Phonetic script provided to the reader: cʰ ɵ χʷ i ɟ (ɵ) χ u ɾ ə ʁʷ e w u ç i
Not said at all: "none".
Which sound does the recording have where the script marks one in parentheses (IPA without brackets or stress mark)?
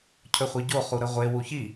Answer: o